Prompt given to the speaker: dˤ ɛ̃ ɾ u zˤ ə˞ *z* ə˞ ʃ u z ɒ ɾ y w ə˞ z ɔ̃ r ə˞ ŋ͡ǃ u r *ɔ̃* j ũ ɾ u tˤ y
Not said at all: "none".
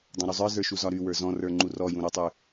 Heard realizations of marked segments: z, ɔ

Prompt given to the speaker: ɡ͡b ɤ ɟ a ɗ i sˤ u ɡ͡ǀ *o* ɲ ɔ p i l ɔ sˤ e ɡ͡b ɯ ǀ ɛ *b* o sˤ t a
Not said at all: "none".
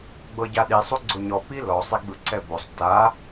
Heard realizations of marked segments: o, b

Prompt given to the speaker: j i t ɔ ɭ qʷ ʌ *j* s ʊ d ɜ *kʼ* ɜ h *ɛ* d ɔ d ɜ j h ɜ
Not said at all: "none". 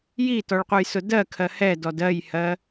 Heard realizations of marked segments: j, kʰ, ɛ

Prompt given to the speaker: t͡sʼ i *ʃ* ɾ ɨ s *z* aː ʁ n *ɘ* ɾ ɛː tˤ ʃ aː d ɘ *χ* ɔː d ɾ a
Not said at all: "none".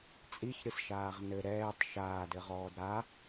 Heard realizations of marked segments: ç, ʃ, ɘ, ʁ

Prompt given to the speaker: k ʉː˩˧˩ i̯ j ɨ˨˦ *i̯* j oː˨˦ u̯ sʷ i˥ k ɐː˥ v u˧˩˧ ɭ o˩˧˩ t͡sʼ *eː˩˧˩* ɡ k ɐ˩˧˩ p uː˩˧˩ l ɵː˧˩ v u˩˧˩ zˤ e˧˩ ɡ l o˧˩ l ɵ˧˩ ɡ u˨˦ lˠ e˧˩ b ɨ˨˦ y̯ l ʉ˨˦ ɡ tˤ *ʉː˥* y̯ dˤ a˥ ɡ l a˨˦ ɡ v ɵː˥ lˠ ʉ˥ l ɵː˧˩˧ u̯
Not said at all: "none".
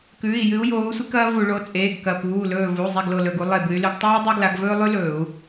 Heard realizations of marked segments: u̯, eː˩˧˩, uː˥

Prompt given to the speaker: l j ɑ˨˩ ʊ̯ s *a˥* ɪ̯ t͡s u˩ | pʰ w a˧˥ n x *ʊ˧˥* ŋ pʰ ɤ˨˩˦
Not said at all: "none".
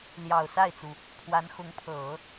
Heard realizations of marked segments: a˥˩, ʊ˧˥

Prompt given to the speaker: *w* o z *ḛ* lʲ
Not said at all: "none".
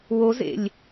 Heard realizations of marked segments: w, ḛ

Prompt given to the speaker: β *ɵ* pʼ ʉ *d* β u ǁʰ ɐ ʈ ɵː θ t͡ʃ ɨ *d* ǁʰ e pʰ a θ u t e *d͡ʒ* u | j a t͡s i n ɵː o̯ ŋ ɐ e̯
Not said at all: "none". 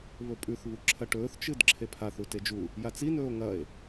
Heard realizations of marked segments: ɵ, θ, d, d͡ʒ

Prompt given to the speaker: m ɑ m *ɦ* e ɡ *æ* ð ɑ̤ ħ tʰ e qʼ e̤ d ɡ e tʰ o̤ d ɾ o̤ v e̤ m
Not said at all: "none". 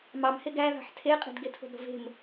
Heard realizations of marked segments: h, æ

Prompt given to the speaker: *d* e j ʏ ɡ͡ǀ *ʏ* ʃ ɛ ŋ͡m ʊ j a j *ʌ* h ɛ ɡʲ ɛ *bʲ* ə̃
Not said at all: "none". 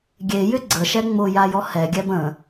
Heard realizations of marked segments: ɡʲ, ə, ɔ, b

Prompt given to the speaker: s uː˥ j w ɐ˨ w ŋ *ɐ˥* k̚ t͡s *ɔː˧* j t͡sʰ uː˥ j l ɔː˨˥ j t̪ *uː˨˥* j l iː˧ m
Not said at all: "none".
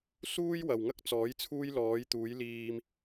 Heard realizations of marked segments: ɐ˥, ɔː˨˥, uː˨˥

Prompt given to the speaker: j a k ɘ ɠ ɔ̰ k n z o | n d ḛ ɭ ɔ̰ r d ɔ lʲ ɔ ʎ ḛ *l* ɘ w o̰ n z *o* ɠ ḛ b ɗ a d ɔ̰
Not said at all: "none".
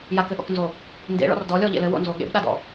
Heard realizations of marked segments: l, o

